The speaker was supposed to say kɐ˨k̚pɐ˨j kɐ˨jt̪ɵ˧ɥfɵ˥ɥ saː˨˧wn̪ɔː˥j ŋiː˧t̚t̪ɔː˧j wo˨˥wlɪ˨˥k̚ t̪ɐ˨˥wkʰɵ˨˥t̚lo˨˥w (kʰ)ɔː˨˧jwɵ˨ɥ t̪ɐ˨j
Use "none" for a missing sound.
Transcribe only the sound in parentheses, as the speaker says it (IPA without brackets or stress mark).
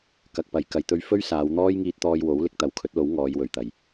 ŋ